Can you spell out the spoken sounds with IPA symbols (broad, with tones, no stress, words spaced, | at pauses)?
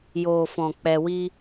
joː˨fɔ̃˨ k͡pɛ˧wi˦